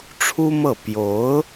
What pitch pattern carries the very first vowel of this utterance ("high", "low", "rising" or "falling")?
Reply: high